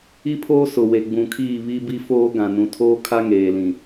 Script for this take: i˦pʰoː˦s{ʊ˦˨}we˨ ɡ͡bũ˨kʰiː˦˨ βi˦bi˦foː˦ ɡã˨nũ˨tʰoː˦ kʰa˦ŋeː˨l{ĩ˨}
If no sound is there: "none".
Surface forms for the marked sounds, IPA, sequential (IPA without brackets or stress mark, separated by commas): ʊ˨, ĩ˨